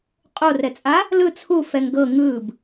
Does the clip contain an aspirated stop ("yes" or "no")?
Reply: yes